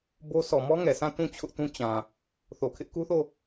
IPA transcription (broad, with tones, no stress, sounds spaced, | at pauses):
b o˦ sʰ ɔ˨ m ɔ˦ ŋ ɛ˨ sʰ ã˦˨ t ũ˦˨ t͡ɕʰ ʊ˦ ʔ t ũ˦ t͡ɕ ã˨ | θ o˨ kʰ ɪ˦ ʔ k u˦ θ o˦˨